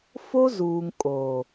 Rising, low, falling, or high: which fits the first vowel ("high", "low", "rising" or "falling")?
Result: high